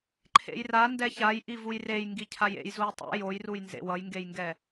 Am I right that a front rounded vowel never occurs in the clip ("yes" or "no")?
yes